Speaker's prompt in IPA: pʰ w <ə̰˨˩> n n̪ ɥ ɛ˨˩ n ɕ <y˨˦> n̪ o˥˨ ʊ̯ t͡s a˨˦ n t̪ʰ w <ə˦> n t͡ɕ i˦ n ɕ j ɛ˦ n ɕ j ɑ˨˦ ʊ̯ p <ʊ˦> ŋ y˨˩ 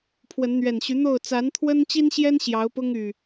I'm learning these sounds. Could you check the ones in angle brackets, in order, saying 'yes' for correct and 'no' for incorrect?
no, yes, yes, yes

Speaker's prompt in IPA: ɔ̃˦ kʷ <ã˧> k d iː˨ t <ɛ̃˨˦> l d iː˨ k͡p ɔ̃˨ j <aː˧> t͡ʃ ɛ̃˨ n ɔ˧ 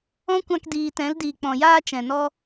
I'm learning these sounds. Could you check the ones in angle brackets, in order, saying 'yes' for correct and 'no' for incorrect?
yes, yes, yes

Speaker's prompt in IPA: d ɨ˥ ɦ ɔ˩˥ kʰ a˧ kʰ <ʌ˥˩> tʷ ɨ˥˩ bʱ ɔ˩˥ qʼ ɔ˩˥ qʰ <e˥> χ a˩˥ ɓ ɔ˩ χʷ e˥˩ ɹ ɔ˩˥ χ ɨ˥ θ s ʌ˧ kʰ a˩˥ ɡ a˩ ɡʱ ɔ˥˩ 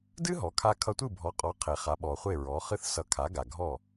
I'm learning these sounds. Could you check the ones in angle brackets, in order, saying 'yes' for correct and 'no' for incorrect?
no, no

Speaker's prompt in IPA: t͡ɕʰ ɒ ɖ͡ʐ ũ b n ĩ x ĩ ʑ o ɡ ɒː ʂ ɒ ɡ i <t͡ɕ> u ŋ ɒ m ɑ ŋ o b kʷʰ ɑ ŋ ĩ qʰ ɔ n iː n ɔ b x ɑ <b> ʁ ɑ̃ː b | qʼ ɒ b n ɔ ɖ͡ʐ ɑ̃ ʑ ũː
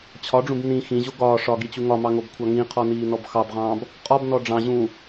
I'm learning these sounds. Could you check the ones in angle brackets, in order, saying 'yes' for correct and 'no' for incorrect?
yes, yes

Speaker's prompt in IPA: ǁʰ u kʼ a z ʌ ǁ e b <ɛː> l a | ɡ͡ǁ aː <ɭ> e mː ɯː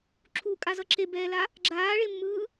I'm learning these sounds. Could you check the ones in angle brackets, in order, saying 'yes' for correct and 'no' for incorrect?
yes, yes

